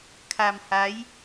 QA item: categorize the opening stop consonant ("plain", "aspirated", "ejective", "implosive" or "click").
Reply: aspirated